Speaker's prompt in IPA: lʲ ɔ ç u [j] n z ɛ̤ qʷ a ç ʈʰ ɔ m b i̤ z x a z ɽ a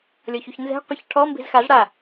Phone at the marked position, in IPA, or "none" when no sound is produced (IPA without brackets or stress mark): ç